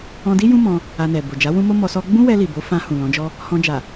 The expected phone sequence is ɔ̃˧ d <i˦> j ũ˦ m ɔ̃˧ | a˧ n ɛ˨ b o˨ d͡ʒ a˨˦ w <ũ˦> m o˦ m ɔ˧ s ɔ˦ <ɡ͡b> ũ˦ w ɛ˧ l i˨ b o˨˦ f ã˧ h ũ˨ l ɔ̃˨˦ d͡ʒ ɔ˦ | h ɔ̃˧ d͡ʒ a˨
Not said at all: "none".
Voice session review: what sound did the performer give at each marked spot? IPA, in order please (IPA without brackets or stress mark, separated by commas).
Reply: i˦, ũ˦, ɡ͡b